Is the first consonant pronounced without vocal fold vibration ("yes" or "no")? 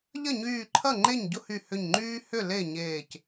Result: no